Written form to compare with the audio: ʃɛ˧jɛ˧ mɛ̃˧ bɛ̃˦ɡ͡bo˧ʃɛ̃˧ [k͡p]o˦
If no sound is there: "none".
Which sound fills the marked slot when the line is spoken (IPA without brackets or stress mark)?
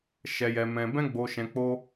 k͡p